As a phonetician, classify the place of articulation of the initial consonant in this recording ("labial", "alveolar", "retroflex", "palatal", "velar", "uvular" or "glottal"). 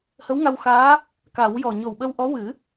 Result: glottal